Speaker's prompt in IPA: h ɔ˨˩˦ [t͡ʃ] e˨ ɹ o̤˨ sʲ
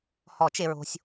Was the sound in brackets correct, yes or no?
yes